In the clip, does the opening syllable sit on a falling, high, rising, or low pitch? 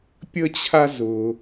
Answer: high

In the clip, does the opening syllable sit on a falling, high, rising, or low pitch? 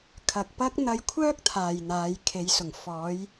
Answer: low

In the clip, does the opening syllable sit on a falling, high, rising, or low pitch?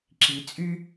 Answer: low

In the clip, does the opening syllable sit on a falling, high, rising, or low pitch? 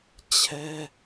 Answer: high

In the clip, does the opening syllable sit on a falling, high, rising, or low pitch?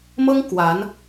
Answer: high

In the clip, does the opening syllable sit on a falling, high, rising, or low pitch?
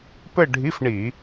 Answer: falling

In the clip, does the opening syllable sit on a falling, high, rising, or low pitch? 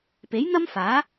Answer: rising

